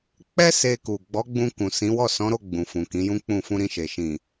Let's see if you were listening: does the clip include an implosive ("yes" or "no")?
no